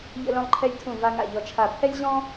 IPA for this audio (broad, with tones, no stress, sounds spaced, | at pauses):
ʎ ə̰˥ l œ̃˥ lˠ ǃʰ ɛ˥ lʲ tʰ ũ˥˨ v a˥ ŋ a̰˥˨ ʎ ɔ˥˨ t͡ʃʰ a˥˨ pʰ ɛ˥ lʲ ʑ ɔ̃˥